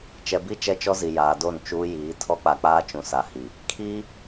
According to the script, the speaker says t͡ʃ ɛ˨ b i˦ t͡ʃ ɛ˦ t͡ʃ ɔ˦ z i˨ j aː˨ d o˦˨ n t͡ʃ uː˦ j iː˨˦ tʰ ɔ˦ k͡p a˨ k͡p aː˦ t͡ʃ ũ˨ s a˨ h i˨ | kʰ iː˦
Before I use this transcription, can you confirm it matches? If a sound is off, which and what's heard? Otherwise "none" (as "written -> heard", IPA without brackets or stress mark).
none